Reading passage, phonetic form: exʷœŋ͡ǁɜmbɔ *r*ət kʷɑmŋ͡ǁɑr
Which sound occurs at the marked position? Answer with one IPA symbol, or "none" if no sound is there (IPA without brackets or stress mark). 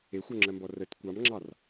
r